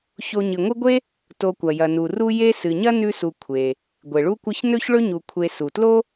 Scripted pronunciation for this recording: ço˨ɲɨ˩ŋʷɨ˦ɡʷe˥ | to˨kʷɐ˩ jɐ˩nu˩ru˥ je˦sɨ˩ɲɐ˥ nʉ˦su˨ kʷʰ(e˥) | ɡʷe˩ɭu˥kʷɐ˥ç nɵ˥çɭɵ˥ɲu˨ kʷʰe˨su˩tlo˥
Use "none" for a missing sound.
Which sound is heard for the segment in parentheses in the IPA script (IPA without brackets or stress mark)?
e˩